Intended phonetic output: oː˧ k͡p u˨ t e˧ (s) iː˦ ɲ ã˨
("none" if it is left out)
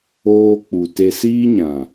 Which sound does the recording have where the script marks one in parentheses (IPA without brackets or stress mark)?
s